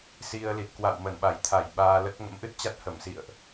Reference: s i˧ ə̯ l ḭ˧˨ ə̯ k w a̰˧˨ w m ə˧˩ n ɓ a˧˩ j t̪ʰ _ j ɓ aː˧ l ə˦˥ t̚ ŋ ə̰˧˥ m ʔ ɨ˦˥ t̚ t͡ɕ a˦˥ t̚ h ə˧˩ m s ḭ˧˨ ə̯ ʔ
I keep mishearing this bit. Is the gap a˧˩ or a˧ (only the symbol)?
a˧˩